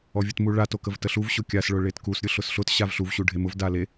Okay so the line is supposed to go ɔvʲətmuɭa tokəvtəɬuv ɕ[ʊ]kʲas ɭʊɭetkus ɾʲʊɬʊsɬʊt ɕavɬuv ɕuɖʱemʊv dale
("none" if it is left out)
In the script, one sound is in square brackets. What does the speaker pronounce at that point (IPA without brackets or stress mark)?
ʊ